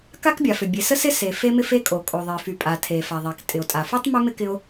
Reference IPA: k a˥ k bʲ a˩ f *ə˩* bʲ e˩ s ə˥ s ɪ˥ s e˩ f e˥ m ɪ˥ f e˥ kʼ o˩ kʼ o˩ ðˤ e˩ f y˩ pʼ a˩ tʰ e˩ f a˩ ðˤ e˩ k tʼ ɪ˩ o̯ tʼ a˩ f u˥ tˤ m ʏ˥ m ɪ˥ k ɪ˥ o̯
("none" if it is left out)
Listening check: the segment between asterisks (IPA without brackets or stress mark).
ʏ˩